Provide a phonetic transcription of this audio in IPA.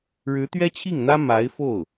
ɻɻ̩˧˥t̪ɥɛ˥t͡ɕʰi˥˩ŋn̪ä˥ ma˧˥ɪ̯fo˥˩ʊ̯

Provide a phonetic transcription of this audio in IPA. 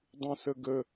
dˤũsəɡə

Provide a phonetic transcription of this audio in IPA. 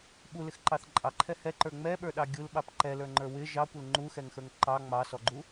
ɓulɪxǃɑθ ǃʼɑǃʰɛ hɛǃə˞ ŋ͡mɛɓə˞ɗɑ ɡʲulɓɑp ǃɛlə˞ŋ͡ǃə˞ wɪ ʒɑkʷɪl ŋ͡ǃuxɛŋxə˞ŋ ǃɑ ŋ͡mɑsɔɡ͡ǃu

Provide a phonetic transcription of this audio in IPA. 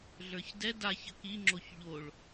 ɮə˞çdɛ daç əkiŋ͡ǁoç ʎoɭ

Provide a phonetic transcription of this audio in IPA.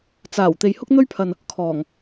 t͡saː˨˩w t̪e˨jhʊ˥k̚ n̪ɵ˥ɥpʰɐ˨n | kʰɔː˨˩ŋ

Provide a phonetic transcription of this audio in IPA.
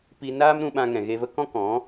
pi˧naː˦mɾũ˧ɓã˧ ŋɛ̃˨ɣe˧və˦ kɔ̃˦kɔ̃˨˦

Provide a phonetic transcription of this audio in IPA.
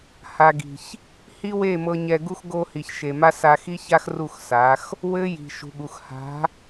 ha˨ɡi̤˨ç | hi˦we˦˨mɤ˧ɲɛ˧ ɡu˦x ɡo˧ hi˨çʃe˨ma˦ sa˧xi˦ça˦x ru˦˨xsa˨˦x | wɘ˦ ji̤˨ ʃṳ˨ɠu˨x ha̤˨˦

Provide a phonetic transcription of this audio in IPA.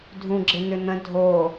dʱũɡ͡ǁɪn̪ʏn̪ə̃ dʱo

